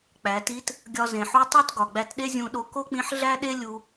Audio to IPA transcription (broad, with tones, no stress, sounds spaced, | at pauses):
k͡p æ˩˧ t i˧˥ t | ɡʲ ɒ˧ z ẽ˩ ħ u˧˥ tˤ o˥ t ɡ ɒ˩ ɡ͡b æ˧ t ɗ e˥ zʲ ũ˧ ɗ o˧ k o˥ k͡p ĩ˧˥ ħ ɮ æ˥ ɗ e˥ lʲ u˧